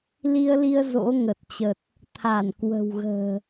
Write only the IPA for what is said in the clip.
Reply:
l i˧ ə̯ l i˧ ə̯ z o̰˧˥ ŋ ə˨˩ t̚ t͡ɕ ə˨˩ t̚ | t̪ʰ a˧˩ n k w ə̤˨˩ w ɣ ə̤ː˨˩

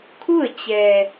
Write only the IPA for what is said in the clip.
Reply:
kʰ u˥˨ ə̯ t͡ɕ ɛː˧

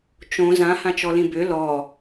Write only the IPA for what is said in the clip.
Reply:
t͡ʃ õ z ã h ã t͡ʃ ɔ l ĩ b ʏ l ɔ

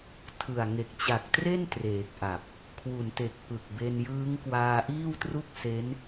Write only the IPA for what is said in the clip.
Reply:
tʰ ɯ˨˩ a̯ ŋ e˨˩ k̚ t͡ɕ a˨˩ k̚ t r e˥˩ n t r eː˨˩ k̚ ʔ a˨˩ p̚ | kʰ w u˩˦ n t e˨˩ k̚ p ɯ˨˩ k̚ b e˧ n j ɯː˦˥ ŋ k w aː˧ ʔ iː˥˩ w t r u˥˩ k̚ s e˦˥ n

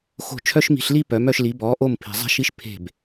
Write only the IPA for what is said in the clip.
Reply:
x o̤˥˩ t͡ʃʰ œ˥ ʃ m i̤˧ ɬ l i˥ p œ˩˥ m œ˧ ʃ l i˩˥ b ɔː˩˥ ʔ o˥˩ m pʰ i̤˩ zˤ ɛ̤˥ ʃ i˥ ʃ pʰ e̤˥˩ b

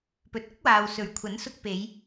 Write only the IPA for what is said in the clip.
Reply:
p ɵ˨ t̚ ʊ˥ k̚ w aː˨ w s ɵ˨˩ ɥ kʷʰ ɐ˨˥ n s ʊ˧ k̚ p e˨˧ j

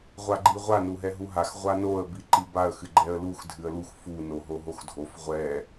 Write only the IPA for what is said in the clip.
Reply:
ʁʷ a ɡ͡ǃ i ʁʷ a n u ɦ ɛ ɦ u ɦ a x ʁʷ a n o ə̯ b i ǃ i b a ə̯ x ɨ ɡ͡ǃ ɛ ə̯ l u x dʱ ɨ ə̯ l u x f u n o ɦ o ɦ o x dʱ o f ʁʷ ɛ

